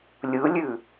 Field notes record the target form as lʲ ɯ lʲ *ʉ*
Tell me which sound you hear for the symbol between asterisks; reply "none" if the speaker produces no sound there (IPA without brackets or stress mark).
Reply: ʉ